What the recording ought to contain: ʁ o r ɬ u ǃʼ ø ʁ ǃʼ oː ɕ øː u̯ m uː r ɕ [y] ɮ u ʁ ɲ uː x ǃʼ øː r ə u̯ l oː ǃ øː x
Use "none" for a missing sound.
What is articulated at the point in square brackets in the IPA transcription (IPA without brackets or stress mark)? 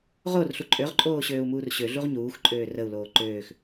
ø